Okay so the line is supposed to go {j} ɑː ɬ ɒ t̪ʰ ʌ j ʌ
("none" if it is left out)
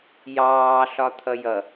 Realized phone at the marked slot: j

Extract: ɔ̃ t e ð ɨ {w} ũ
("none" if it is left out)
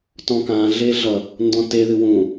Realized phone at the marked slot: w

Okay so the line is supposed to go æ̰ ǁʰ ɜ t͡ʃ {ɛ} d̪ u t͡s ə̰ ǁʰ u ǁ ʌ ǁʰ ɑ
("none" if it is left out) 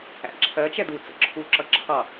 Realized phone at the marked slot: ɛ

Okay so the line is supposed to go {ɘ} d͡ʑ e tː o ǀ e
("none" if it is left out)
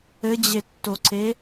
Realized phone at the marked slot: ɘ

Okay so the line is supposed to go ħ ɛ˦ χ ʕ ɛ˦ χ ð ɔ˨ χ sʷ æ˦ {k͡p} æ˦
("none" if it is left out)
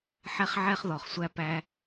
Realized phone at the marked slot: p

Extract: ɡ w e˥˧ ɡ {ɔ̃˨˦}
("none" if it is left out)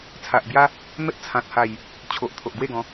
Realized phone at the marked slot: ɔ̃˨˦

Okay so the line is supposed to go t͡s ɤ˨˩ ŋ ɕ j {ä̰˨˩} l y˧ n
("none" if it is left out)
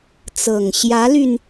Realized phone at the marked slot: ä˧˥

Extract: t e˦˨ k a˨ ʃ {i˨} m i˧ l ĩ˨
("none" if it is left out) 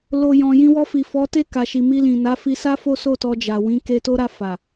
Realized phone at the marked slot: i˨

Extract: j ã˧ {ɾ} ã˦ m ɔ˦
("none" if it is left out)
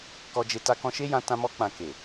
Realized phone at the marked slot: t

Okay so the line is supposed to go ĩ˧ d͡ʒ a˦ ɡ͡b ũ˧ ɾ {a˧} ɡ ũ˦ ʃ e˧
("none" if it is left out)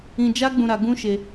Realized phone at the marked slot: a˧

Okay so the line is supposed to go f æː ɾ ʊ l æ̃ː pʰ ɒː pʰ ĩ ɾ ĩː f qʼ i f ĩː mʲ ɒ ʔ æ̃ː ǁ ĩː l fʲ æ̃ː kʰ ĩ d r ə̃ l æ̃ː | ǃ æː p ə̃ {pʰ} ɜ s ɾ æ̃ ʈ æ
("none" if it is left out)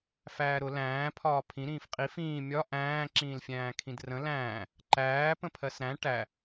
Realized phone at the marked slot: pʰ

